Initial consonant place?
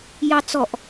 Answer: palatal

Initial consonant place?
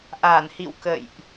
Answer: glottal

